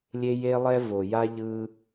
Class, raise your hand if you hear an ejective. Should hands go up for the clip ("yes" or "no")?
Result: no